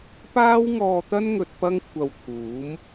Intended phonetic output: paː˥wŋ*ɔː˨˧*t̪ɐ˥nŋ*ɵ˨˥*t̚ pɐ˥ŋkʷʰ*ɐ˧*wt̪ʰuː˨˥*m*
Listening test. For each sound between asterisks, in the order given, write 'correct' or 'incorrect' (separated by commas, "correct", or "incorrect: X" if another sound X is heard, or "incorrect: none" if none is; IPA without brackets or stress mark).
incorrect: ɔː˧, incorrect: ɵ˧, correct, correct